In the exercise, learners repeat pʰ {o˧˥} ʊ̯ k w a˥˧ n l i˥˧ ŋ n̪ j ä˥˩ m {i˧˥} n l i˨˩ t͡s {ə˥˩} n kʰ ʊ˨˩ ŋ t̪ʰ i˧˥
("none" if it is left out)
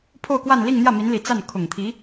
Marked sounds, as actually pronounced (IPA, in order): o˥˧, i˧˥, a˥˩

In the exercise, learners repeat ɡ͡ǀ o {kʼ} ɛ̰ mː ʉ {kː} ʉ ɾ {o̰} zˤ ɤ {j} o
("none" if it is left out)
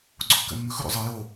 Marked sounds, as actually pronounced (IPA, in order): kː, x, o̰, j

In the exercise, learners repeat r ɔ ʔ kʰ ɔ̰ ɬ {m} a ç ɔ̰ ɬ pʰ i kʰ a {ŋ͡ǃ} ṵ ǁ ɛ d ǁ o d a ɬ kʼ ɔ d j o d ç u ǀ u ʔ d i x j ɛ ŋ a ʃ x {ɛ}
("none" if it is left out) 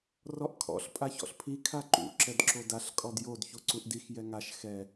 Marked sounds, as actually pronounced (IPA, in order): pʼ, ǃ, ɛ

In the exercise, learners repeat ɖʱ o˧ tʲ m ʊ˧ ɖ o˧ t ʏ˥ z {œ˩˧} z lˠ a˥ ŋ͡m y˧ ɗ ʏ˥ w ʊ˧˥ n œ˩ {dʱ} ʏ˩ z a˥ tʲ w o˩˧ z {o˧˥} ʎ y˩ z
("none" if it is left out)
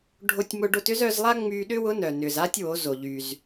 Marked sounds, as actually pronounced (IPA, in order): œ˩˧, n, o˩

